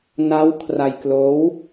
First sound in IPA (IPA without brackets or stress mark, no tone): n